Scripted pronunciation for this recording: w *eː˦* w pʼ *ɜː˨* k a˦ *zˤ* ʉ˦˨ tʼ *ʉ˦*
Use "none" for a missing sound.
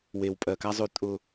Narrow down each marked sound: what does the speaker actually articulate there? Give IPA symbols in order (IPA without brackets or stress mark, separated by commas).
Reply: eː˨, ɜː˨, zˤ, ʊ˦